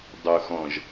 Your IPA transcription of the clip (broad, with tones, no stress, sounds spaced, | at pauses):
dˤ o˨ x ɔ̃˨ ʒ